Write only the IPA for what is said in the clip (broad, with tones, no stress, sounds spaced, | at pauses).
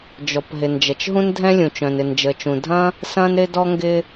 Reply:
d͡ʒ ɔ˩ p ɦ ɪ˩ n d͡ʒ ɐ˩ t͡ʃ ɦ ũ˥ n dʱ ɛ̃˥ lʲ ũ˩ t͡ʃ œ̃˩ n ɪ˩ n d͡ʒ ə˩ t͡ʃ ũ˩ dʱ ɐ̃˥ | s ɐ̃˥ n ɾ ɪ˥ d ɔ˥ ŋ ɡ ɪ˥